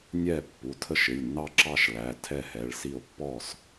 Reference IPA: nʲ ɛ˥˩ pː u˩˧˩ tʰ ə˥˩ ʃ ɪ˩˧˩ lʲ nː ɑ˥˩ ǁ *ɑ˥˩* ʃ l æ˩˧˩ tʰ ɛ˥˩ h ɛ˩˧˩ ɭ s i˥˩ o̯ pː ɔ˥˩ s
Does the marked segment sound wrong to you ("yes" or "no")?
no